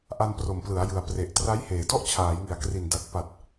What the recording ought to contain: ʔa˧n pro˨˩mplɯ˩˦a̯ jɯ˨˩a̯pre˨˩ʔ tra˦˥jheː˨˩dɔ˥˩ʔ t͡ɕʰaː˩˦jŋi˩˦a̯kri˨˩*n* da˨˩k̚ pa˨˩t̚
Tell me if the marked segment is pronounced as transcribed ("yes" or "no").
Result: yes